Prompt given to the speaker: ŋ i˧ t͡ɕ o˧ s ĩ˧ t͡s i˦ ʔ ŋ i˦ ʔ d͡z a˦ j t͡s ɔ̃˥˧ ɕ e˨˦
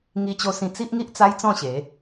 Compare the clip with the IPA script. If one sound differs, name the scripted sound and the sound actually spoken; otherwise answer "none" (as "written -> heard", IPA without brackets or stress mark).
d͡z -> t͡s